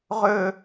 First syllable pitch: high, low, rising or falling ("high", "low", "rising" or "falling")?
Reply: high